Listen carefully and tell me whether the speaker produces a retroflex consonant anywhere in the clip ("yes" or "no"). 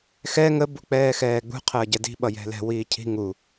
no